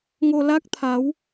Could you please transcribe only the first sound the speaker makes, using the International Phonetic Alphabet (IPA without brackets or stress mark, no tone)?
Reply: ŋ